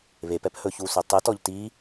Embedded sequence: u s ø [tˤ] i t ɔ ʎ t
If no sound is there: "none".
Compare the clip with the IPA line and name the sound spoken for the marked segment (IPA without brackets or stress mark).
tˤ